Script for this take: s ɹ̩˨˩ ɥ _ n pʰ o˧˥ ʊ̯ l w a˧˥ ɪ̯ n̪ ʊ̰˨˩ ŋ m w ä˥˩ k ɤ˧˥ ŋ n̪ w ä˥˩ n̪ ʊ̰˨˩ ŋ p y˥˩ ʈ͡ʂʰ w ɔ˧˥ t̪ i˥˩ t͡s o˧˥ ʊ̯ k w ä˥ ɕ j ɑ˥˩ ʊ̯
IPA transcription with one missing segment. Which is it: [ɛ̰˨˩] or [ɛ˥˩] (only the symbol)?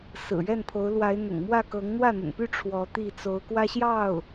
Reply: ɛ˥˩